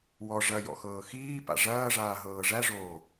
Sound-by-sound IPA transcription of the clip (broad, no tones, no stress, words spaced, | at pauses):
wɔ ʐɐ jɔ̰xɤːxiːpa̰ ʐɐːʐaː ɦɤːʐæʐoː